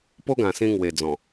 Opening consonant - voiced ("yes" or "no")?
no